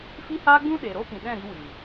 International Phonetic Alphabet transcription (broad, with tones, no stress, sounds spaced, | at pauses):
f i˦ h aː˦ ɡ͡b ũ˦ ɗ eː˨ ɾ o˦ p ĩ˨ ɗ ɛ̃˦˨ ɾ i˧ w i˨